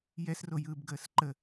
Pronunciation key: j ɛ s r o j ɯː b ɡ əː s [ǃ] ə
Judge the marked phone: correct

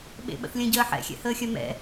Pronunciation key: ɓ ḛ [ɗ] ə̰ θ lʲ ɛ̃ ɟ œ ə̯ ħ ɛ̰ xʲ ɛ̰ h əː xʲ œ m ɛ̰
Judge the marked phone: incorrect: ɓ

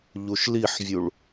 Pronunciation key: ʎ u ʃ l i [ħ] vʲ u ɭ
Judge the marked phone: correct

